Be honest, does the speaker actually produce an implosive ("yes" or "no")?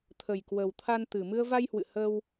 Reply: no